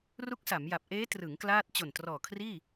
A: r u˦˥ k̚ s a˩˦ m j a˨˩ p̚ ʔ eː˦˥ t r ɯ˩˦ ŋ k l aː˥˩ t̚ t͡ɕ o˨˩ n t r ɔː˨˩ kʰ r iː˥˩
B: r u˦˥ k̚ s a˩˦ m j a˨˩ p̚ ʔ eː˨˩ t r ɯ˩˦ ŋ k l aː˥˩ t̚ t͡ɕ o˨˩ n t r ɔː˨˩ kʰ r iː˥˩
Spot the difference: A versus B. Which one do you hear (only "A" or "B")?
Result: A